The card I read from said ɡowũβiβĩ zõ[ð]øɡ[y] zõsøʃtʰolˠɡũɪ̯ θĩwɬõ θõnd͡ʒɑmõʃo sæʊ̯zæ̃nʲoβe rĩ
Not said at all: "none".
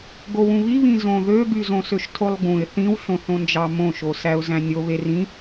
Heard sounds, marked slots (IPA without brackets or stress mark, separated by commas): ð, y